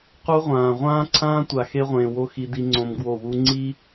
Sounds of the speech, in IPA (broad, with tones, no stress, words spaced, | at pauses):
qu˦ʁʷãː˨ ʁʷãː˦ǀʰãː˦tʷa˨ xe˦ʁʷẽː˨wo˦ xi˦di˦ŋ͡ǀõ˦mɡwo˦˨ wu˦ŋ͡ǀi˦